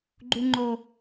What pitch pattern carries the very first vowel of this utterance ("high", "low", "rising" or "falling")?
high